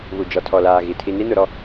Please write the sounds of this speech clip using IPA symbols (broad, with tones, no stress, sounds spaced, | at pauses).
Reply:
β u˨ d͡ʒ ɔ˨ tʰ ɔ˨ l aː˨ ɣ i˨ tʰ i˨ n i˦ n ʊ˨ ɾ ɔ˦